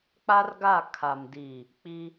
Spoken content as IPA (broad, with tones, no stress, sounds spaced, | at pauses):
k͡p a˦ r ɡ a˦˨ kʰ a˨ m d i˨ | k͡p i˦